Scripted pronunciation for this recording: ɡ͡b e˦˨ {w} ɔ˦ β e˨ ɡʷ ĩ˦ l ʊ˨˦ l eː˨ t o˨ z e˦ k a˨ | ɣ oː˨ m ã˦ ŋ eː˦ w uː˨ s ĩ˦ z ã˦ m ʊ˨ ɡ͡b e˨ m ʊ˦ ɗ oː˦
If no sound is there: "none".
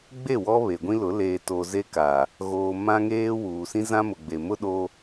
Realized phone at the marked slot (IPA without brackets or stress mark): w